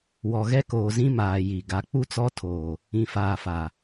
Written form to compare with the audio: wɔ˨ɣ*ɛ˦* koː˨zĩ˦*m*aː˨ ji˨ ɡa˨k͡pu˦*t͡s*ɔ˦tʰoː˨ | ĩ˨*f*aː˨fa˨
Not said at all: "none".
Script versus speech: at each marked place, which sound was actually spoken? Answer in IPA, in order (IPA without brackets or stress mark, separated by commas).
ɛ˦, m, t͡s, f